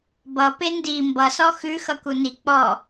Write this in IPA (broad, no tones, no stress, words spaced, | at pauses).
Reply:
bʌ pendi mbʌsɔ xʉ xʌkuni k͡pɔ